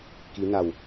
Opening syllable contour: rising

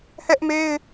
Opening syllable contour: high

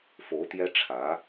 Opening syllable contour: rising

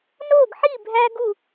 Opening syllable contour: falling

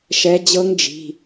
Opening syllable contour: rising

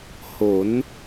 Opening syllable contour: rising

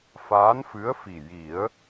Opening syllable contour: rising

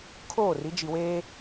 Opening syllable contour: falling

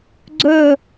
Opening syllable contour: falling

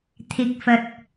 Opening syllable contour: low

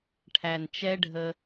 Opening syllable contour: low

